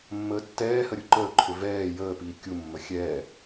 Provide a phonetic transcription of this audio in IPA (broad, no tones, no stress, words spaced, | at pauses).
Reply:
mːəːtːɛːhə ɾʲuǃəːǃʰʏ vɛː jəːpiː kʲumːə xʲɛː